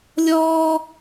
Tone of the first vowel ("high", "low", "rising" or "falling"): high